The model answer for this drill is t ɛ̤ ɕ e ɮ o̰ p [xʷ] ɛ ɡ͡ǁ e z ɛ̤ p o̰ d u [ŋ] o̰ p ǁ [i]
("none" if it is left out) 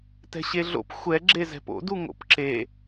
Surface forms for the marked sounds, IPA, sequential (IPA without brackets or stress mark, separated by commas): xʷ, ŋ, e